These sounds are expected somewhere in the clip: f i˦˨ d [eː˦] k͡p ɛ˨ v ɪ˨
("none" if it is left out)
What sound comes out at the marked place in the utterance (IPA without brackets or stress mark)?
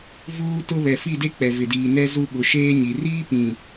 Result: e˦